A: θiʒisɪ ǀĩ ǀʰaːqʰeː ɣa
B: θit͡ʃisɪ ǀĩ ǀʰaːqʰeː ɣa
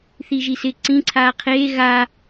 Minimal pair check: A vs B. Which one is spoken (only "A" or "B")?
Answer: A